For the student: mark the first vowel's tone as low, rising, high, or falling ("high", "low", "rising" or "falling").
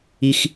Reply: high